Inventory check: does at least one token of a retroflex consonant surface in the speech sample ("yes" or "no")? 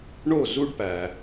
yes